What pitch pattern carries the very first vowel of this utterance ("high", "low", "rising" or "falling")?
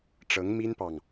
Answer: rising